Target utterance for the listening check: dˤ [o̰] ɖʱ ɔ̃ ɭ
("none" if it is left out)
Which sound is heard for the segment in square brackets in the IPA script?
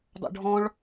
o̰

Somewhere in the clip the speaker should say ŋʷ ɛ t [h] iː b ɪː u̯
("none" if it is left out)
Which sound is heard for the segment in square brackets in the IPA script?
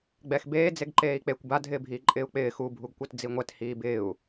h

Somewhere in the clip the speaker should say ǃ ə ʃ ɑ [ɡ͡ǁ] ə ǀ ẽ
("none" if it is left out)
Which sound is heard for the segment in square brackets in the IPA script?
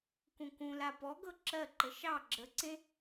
ɡ͡ǁ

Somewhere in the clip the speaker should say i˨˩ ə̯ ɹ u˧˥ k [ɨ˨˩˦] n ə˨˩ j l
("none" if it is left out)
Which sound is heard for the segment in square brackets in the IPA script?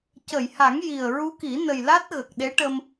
i˨˩˦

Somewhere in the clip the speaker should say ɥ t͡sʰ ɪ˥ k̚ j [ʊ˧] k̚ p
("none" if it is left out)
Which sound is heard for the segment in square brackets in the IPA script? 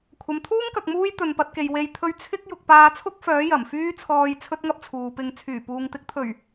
ʊ˧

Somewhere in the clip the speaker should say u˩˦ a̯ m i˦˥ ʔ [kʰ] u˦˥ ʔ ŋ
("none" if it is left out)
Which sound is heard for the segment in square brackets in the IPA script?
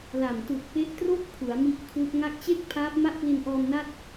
kʰ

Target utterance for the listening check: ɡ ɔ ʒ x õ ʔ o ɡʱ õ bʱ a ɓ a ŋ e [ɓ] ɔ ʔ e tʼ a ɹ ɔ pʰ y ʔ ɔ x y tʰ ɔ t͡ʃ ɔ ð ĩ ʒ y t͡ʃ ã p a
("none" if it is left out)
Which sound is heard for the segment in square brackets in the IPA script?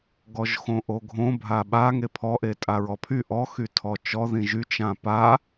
pʰ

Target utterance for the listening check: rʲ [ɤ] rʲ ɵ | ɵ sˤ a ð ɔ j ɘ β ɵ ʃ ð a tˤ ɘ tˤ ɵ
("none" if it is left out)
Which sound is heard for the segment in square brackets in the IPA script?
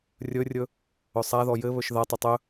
ɵ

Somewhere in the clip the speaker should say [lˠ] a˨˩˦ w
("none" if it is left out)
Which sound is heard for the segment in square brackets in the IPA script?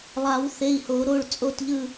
lˠ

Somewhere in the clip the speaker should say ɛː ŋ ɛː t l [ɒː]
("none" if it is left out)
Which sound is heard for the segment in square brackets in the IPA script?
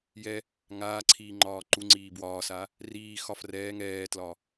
ɒ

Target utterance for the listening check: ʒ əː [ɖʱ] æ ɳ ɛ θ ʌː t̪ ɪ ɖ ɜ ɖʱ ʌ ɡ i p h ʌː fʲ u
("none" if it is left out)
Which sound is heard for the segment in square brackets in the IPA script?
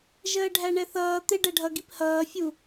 ɖʱ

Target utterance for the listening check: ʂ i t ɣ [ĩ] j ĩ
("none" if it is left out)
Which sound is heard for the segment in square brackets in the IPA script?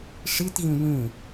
ĩ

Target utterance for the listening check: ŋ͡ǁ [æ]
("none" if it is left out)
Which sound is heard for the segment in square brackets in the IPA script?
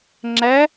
æ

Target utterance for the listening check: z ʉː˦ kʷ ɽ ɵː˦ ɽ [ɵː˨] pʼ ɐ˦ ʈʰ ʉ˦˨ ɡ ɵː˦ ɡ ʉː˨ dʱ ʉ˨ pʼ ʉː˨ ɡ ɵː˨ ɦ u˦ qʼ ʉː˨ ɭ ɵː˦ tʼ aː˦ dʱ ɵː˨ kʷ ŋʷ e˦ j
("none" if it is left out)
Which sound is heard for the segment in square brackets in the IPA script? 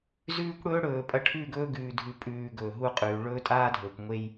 ɵː˨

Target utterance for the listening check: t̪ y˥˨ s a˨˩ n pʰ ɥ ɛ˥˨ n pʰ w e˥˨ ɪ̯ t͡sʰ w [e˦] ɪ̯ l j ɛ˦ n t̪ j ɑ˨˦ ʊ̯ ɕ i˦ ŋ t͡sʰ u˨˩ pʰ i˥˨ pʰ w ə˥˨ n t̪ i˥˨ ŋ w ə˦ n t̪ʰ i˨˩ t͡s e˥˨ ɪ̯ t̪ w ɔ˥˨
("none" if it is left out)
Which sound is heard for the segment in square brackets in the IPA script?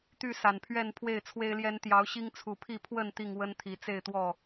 e˦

